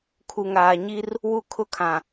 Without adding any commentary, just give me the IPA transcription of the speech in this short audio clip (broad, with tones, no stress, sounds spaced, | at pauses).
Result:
kʰ u˨ ŋ aː˨ ɲ i˦ r | w u˦ kʰ ʊ˦ kʰ ã˨